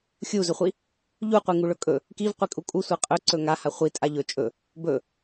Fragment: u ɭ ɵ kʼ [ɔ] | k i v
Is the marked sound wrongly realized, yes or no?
yes